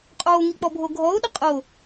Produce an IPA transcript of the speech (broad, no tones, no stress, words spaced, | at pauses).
qʼoːŋik͡pɔbʱo ɡʱɔo̯ɗɪ qʼo